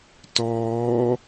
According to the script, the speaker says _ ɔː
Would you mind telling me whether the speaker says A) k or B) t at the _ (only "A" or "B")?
B